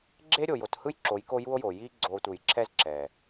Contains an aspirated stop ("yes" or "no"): yes